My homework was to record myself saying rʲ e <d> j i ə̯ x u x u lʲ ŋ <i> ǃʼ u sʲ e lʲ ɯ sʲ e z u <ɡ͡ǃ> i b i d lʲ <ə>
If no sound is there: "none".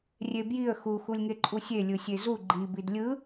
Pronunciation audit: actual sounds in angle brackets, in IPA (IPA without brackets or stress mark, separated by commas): b, e, ɡ͡ǃ, ɯ